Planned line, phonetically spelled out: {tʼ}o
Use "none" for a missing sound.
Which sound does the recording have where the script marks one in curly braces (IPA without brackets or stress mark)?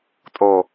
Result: tʼ